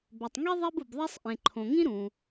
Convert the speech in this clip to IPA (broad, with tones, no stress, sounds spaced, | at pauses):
b ɵ˩ tˤ ŋ i˥ ðˤ e˥ b u˩ b ðˤ e˥ sˤ ʔ ẽ˩ ǃʰ õ˩ ŋ ĩ˥ ɾ ũ˩